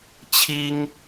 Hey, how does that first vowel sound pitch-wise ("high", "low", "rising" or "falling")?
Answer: high